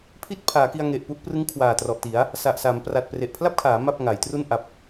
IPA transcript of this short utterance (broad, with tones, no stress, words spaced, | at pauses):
pʰi˥˩t̚pʰaː˩˦ki˧a̯ ŋe˨˩ʔpu˥˩ʔprɯ˦˥ŋkʰwaː˨˩ trɔ˨˩ʔti˩˦a̯ | sa˨˩ʔsa˩˦m pra˨˩t̚ pre˨˩ʔpʰla˥˩p̚kʰaː˩˦ ma˥˩p̚ŋa˩˦jtru˥˩n ʔa˨˩p̚